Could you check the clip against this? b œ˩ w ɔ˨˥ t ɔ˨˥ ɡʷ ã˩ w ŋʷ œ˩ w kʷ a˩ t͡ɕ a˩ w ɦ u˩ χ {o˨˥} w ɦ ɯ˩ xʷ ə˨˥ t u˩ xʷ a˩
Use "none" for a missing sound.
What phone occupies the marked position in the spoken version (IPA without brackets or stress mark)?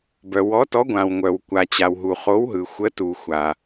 o˨˥